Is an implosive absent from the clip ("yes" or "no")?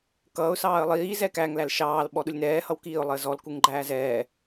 no